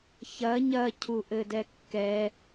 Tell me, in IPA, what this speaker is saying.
ç ɐ ɲ ɐ cʰ u ʔ ɘ d ɛ kː ɛ

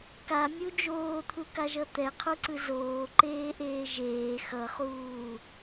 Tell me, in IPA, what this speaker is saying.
k a mʲ u d͡ʒ oː t̪ʰ u k a ʒ ʌ t̪ ɛ qʰ u ǀ ɯ z oː ǃ eː ʔ eː ʒ eː x ʌ χ uː

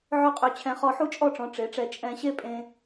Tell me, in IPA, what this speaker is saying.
ʕ ø˥ qʼ ø˧ t͡ɕʰ ɛ̃˧ χ ɔ˧ ħ u˥ t͡ʃʼ ɔ˥˧ ʈ͡ʂ ɔ̃˩˧ ʈ͡ʂ e˩˧ ʈ͡ʂ ɛ˧˩ t͡ʃʼ ɛ̃˧ ɕ e˥ pʼ ẽ˧

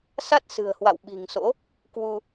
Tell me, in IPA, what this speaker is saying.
s a˦˥ t̚ s ɨ̤˨˩ ə̯ h w a̰˧˨ w ɓ i̤˨˩ ŋ s o̰˧˥ | k w u˧

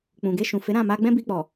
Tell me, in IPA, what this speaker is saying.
k͡p ũ˨ ɡ e˧ ʃ ũ˨ f e˨˦ ɾ ã˦˨ m a˧ ɡ͡b ɛ̃˦ b i˧ k͡p ɔ˨

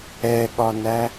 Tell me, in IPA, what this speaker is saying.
ɛ ɠ ɒ n æ

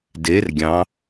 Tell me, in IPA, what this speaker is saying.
d e r ɡʲ ɑ̃

